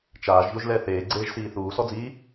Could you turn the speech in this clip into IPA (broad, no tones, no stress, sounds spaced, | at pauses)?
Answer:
t͡ʃ aː ʒ ʎ o ʒ l ɛ θ eː ɡ͡ǀ eː ʒ s iː θ uː s ɔ d͡z iː